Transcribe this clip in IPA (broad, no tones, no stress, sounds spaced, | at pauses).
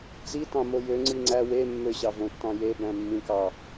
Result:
t͡s i t ɑ̃ m o j ø ŋ͡ǀ i ŋ͡ǀ æ w e mː ø ɕ ɑ v õ tː ɑ̃ j e b æ̃ mː ĩ k ɑ